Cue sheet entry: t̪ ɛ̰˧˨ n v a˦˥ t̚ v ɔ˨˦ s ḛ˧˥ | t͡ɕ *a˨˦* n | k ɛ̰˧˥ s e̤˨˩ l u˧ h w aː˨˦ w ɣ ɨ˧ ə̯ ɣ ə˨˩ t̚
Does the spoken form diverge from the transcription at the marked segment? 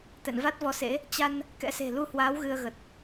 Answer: yes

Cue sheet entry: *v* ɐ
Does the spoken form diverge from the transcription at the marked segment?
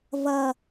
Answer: no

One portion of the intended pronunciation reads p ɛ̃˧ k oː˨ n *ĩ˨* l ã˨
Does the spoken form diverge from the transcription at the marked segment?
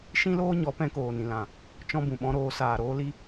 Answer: no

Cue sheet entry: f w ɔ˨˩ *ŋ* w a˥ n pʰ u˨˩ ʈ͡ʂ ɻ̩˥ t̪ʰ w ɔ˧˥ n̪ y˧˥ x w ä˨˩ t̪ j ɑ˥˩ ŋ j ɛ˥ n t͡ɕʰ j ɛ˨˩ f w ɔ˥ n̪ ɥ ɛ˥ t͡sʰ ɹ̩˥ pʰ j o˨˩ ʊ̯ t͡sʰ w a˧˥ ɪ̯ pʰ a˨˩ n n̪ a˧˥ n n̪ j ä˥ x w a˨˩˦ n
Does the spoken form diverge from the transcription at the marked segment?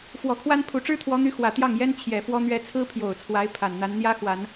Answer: yes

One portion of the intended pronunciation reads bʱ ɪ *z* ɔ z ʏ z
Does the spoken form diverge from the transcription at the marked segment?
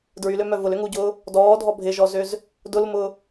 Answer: yes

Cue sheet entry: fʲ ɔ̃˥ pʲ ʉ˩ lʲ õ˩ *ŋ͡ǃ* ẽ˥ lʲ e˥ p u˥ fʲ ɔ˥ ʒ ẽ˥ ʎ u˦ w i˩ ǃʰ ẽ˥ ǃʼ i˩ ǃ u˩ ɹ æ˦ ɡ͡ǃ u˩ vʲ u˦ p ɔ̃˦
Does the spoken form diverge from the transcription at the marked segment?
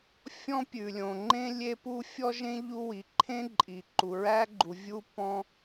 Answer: no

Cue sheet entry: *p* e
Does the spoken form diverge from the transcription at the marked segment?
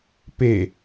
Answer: no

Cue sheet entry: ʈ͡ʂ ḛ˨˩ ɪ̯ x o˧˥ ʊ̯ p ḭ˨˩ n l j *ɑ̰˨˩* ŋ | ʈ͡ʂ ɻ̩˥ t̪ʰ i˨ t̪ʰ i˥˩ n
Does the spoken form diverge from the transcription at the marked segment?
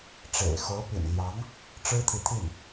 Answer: yes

